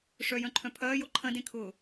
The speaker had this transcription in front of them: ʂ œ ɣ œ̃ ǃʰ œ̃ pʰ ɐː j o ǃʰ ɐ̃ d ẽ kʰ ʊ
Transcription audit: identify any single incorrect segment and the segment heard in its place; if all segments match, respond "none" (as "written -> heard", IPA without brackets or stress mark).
ɣ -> j